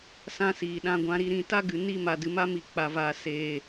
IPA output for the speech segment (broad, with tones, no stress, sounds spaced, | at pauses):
s ã˦ s iː˨ ɗ ã˧ ɡʷ ã˧ ɾ i˧ ɾ ĩ˦˨ t a˦ ɡ ɨ˨ n i˦ m a˨ d ɨ˨ m a˦ m i˨ k͡p a˨ v aː˨ s eː˨